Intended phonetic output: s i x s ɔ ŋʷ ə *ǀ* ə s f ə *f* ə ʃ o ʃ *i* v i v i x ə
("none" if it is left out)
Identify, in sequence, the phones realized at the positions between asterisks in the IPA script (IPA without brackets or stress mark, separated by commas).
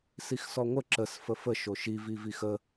ǁ, f, i